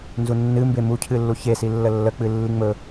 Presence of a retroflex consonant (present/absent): absent